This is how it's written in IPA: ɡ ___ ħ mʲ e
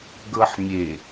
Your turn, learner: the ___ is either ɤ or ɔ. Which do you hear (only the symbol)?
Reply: ɤ